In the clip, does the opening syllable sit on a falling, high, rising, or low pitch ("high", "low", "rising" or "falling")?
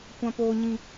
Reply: low